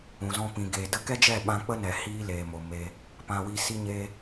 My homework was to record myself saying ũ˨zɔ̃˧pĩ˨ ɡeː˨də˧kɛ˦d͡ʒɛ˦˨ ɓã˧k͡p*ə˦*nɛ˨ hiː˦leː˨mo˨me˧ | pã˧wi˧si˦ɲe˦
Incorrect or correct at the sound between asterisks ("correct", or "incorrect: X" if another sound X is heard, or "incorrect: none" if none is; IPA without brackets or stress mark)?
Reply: correct